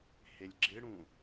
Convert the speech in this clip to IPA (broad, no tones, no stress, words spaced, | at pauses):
helʲɡ͡ǁɪɽũ